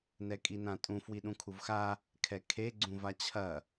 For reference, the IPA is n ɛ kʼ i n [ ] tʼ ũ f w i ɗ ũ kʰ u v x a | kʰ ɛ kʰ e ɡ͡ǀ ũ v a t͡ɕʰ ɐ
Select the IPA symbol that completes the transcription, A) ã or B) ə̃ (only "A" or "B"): A